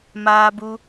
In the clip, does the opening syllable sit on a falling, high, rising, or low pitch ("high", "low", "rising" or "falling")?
high